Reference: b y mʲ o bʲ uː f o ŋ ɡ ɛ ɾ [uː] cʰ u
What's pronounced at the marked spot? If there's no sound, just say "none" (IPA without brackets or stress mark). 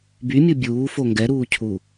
uː